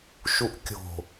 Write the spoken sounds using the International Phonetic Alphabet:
ʃ u ʔ kʲ o̤

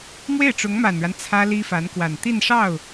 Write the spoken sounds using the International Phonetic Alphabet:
m w e˥˩ ɪ̯ ʈ͡ʂ ʊ˧˥ ŋ m a˨˩ n ɻ a˦ n t͡sʰ ä˥ l i˥ f a˧˥ n k w a˨˩ n t̪ i˥˧ n ʂ ɑ˥˩ ʊ̯

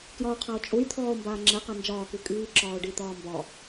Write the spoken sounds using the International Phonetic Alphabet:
k j ɒ o̯ qʰ a o̯ t͡ʃʼ u j t̪ʰ ɔː o̯ m b aː ŋ͡ǁ ɛ q a n d͡ʒ ɒː k u kʼ iː ǁ ɒː o̯ ɖ i t̪ ɒː m b ɒ

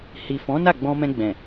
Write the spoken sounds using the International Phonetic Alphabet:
h i˨ f ɔ̃˨˦ n a˦˨ ɡ͡b ɔ̃˧ m ɛ̃˧ ɡ͡b ɛ̃˨

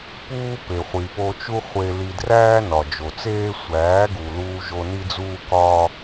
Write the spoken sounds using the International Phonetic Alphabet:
p uː˦ p e˨ χʷ i˨ p o˧ t͡ʃ u˦ χʷ e˧ l i˧ d r æː˦ n ɒ˨ d͡ʒ o˨ t͡s eː˦ sʷ æː˨˦ ɡ u˨ l uː˧ ʒ o˧ n i˦ d͡z uː˦ k ɒː˦

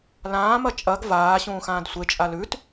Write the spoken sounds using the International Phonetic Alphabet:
l ãː m ɐ t͡ʃʼ ɐ ɡ v aː ɕ ũː x ãː d sʷ e t͡ʃʼ a l ʉ t

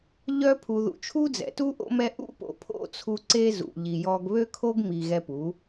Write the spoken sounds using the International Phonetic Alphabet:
ʎ œ˦ pʰ u˧ ð ṵ˧ t͡ʃʰ u˦ d͡z ɛ̰˨ t u˦ ʔ o̰˦ m ɛ˦ ʔ ṵ˦ p o̰˨ pʰ o̰˦˨ t͡sʰ u˧ ǀ e˦ z ṵ˨ ʎ i˨ j ɔ˧ ɡ β ø˦ kʰ o˦ ɡ m i˨ ɣ ɛ˧ p u˨˦

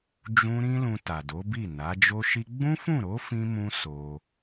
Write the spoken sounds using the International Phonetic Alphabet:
d͡ʒ ũ˦ ɾ ĩ˦ l ũ˧ t a˨ d o˨˦ b i˦˨ n a˨˦ d͡ʒ o˦ ʃ i˧ ɡ͡b ũ˦ f ũ˦˨ ɾ o˨˦ f ĩ˦ m ũ˦ s o˧

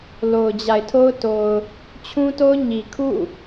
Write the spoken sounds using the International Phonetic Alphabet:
l o˨ ʊ̯ d͡ʑ a˨ ɪ̯ tʰ o˦ ʊ̯ t o˨ ʊ̯ | t͡ɕʰ ũ˦ t o˦ ʊ̯ ɲ i˨ kʰ ṵ˦˨

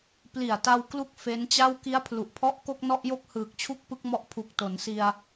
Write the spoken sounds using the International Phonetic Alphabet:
p l i˨˩ a̯ t a˧ w k l u˥˩ k̚ f e˦˥ n t͡ɕ a˥˩ w k i˦˥ a̯ pʰ l u˨˩ ʔ pʰ ɔ˦˥ ʔ k o˥˩ k̚ n ɔ˥˩ ʔ j o˥˩ k̚ h ɯː˨˩ k̚ t͡ɕʰ u˥˩ k̚ p ɯ˦˥ k̚ m ɔ˦˥ ʔ pʰ u˨˩ k̚ t o˩˦ n s i˧ a̯

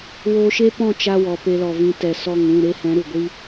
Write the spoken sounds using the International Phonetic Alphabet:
w oː˧ ʃ e˦ p ɔ̃˦˨ t͡ʃ a˦ w ɔ˨ p e˧ l ɔ˨ v ĩ˧ t ɛ˨ s ɔ˦˨ ŋ ũ˦˨ ɾ e˦ h ɛ̃˨˦ ɾ u˨ ɡʷ i˦

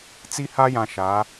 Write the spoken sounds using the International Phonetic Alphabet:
t͡s i˦ h a˦ j ã˨ ʃ a˨˦

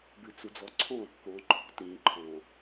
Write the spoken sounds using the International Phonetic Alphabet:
b ɨ t͡s u d͡z ɔ ǀʰ ɔ̃ ɾ ɔ̤ k ɔ̃ ǃʰ ɔ̤ t ĩ ǃʰ ɔ̃

